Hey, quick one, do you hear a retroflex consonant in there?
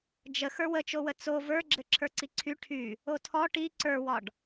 yes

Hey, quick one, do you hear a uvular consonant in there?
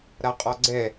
yes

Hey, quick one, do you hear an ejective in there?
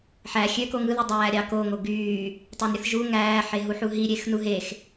no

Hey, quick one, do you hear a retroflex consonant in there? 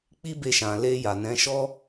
no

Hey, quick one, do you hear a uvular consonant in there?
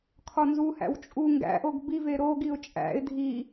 no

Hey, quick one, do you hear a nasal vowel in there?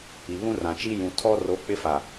yes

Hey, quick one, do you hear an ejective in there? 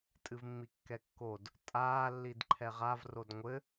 yes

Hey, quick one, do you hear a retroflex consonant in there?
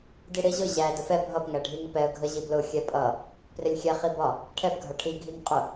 yes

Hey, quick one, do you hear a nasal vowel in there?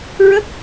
no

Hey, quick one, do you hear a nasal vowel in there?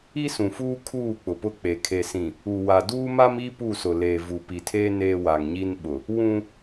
yes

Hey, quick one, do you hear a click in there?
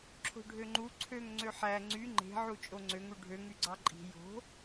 yes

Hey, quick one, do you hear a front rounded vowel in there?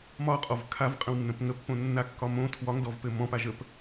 no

